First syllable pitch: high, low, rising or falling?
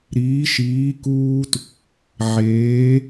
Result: rising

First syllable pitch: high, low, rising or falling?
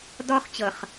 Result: high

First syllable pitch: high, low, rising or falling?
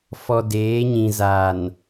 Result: low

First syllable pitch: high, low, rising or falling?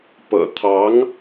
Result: low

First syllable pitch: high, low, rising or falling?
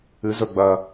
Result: rising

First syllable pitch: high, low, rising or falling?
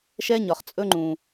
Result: high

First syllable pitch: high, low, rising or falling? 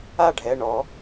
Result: falling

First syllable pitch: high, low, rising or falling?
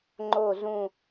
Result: falling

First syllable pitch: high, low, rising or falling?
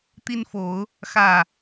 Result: high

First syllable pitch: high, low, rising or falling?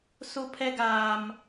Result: high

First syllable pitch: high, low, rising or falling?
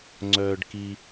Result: low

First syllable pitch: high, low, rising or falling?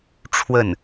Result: falling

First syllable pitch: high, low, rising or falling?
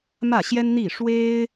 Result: falling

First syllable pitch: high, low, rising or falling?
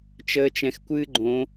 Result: low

